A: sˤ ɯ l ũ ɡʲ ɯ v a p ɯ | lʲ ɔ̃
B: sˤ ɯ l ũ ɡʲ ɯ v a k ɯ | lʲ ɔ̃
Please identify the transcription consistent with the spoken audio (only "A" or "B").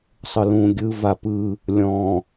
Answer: A